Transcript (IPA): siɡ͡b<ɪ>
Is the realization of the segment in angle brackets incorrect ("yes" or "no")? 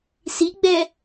yes